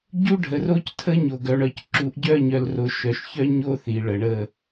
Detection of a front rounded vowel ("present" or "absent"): present